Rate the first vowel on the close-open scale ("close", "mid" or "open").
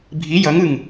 close